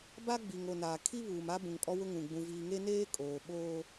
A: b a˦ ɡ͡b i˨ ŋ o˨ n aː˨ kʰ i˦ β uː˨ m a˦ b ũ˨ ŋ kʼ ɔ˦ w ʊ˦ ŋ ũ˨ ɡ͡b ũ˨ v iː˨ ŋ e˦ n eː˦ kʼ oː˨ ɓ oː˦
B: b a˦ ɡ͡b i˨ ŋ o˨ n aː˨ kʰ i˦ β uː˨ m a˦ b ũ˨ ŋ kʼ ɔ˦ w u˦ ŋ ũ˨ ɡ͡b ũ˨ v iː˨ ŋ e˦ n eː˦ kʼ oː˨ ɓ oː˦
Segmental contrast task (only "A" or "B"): A